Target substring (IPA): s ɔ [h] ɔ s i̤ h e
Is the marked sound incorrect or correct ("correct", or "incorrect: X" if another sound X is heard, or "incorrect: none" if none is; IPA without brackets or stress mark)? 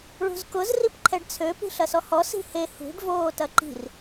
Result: correct